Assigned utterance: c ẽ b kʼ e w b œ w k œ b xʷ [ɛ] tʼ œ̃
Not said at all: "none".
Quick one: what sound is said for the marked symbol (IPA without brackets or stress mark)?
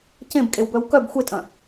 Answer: e